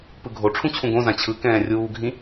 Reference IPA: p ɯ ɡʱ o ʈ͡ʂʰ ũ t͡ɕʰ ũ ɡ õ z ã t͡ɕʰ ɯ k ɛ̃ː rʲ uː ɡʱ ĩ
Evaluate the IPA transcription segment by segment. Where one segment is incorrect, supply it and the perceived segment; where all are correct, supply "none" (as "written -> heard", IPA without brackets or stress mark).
none